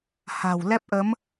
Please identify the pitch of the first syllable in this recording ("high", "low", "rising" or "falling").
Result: low